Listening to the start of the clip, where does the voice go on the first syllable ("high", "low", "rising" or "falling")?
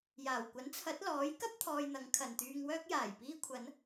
low